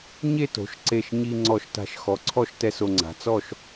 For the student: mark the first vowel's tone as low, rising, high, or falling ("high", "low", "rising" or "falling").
falling